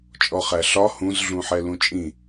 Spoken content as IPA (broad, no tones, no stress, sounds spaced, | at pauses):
t͡ʃʼ ɔ χ æ ɬ ɒ h ũ z ɮ ũ ħ ɛ l ũ t͡ʃʼ ĩ